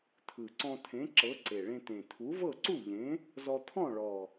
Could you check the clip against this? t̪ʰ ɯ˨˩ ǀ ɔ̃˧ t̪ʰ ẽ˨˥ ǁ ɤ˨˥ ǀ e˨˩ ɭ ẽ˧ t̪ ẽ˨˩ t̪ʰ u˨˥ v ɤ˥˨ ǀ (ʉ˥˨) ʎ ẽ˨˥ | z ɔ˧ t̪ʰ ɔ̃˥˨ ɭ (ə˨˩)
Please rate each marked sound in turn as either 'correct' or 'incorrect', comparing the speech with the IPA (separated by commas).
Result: incorrect, incorrect